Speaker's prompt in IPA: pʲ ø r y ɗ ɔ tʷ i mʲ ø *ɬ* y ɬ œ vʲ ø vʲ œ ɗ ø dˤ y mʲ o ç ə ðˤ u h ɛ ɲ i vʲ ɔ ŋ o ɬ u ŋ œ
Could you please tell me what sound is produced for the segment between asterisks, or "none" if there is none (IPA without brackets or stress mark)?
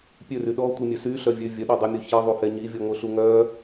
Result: s